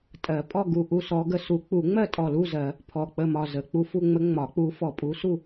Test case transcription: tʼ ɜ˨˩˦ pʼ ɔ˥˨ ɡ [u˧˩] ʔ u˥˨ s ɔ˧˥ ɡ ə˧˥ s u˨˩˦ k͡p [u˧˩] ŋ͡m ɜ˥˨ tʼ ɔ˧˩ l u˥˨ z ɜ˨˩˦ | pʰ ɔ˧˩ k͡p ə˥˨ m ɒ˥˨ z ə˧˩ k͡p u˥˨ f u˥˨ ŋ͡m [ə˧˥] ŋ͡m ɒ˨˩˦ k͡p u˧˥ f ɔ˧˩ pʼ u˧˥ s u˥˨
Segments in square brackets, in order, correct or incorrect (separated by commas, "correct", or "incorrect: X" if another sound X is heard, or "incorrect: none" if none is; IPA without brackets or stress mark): correct, incorrect: u˨˩˦, correct